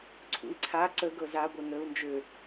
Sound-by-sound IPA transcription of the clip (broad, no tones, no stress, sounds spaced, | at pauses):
ǀʰ ṵ i̯ ǀʰ a ǀ ə ɡ ɤ z a ɡʷ ɛ ŋ əː u̯ n d͡ʒ ø